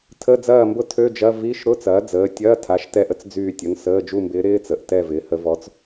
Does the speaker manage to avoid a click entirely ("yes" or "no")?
yes